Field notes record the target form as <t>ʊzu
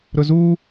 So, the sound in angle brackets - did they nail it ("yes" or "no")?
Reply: no